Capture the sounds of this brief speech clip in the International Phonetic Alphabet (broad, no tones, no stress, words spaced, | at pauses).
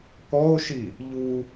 kɔo̯ʃi | ʎu